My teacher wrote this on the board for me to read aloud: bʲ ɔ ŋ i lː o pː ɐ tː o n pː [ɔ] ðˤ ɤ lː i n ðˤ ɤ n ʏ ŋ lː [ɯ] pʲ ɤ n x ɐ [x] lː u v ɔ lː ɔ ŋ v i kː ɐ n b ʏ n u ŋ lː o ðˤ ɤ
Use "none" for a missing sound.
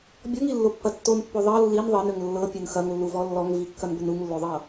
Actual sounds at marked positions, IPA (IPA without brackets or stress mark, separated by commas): o, ɤ, ŋ